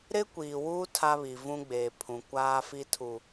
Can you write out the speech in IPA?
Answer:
ɾ ɪ˦ kʷ iː˨ w uː˦ tʰ a˦ β i˨ v ũ˦ ɡ͡b eː˨ pʰ ũ˨ kʷ aː˦ f i˦ tʰ u˨

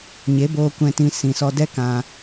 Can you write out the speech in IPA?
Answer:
ɲ e˨˦ b oː˧ kʷ ɛ̃˧ t ĩ˧ s ĩ˨ s ɔ˧ d ɛ˦ k ã˧

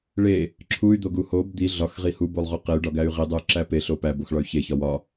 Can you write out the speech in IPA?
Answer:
ɭ e | ǁʰ u y̯ d̪ o ɡ u h o b d̪ i ɮ ɒ x ʁ i h u b o lˠ ʁ o q e y̯ ɖ ɒ ɡ æ y̯ ʁ i dˤ u y̯ ǁ æ p e ɬ o p æ b o x ɭ ɒ y̯ ç e ç ɒ w ɒ

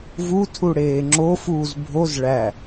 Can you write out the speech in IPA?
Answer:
v u tʰ u ɽ eː ŋ͡ǁ o f uː z bʱ o z ɭ æ

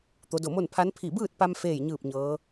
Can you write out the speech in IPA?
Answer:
t̪ o˩˧ d o˧˩ m o˥˨ n pʰ a˧˥ n pʰ i˧˩ b ɯː˥˨ t̚ p a˧ m f eː˥˨ j ɲ ɯː˥˨ p̚ ɲ ɤː˧˥

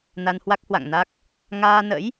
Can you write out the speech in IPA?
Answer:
n a˧ n h w a˦˥ k̚ h w a̰˧˨ ŋ n a˦˥ k̚ | ŋ aː˧ n ə̰˧˥ j

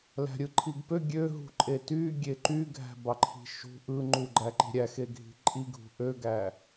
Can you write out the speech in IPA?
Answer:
l æ̤ ɾʲ ɯ ǃʰ i ɡ p ø ɡʲ ø ɦ ṳ ǃʼ e t y ɡʲ e ǃ y ɡʱ æ̤ b ɑ ǃʰ i̤ ʃ ṳ ʔ ɯ ŋ͡ǃ u ɡ͡ǃ æ ǃ i̤ ɾʲ æ x e ɡʱ i̤ ǃʼ i ɡʱ ṳ ʔ ø ɡ æ

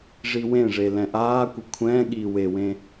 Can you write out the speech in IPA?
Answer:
ʐ i w ẽ ʐ e l ɛ̃ ʔ aː kʷ ɘ kʷʰ ɛ̃ː ɠ iː w e w ẽ

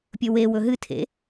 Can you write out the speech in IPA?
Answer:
pʲ ɵ w e w ɵ ɦ ɨ tʰ ḛ

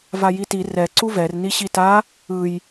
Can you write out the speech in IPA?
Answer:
v a j i t i r ɛ ǀ u v ɛ r n i ɕ i t a | ɯ j

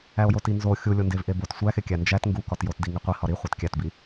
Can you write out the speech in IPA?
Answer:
æ o̯ j o t i n z o xʲ u lʲ o n d e v ʔ e b o t sʷ æ x e kʲ æ n d͡ʒ æ t ŋ ɡ u k ɒ t j o t d i ŋ i qʷ i h ɒ ɾ i χʷ e t kʲ æ t b i

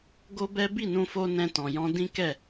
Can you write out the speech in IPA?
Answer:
ɡ o˦ b ɛ˦ b i˦˨ n ũ˧ f o˧ n ɛ̃˧ t ɔ̃˨ j ɔ̃˧ d ĩ˦ k ɛ˦˨

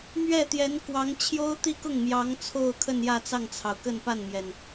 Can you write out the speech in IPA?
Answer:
m ɥ ɛ˥˩ t̪ j ɛ˧˥ n k w ɑ˧˥ ŋ t͡ɕʰ j o˥ ʊ̯ t̪ i˥˧ k ʊ˥˩ ŋ m j ɑ˧˥ ŋ t͡sʰ o˥˧ ʊ̯ kʰ ə˥˧ n j ä˥˧ t͡s ɑ˥˩ ŋ t͡sʰ ɑ˩ ʊ̯ k ə˥˧ n p a˥˩ n m j ɛ˩ n

